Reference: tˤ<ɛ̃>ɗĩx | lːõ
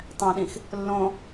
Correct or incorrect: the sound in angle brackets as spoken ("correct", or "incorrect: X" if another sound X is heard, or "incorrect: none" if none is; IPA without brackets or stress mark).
correct